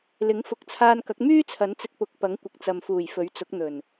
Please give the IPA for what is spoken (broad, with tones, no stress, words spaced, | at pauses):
lɪ˨˥ŋ fʊ˨˥k̚t͡sʰaː˧nkɐ˨˥k̚ myː˥t͡sʰɐ˨˥nt͡sɪ˧k̚ pʊ˨˥k̚pɐ˨˥ŋ kʷɪ˨k̚t͡sɐ˨mfuː˨˩j fɵ˨˥ɥt͡sʊ˨˥k̚n̪ɵ˨˩n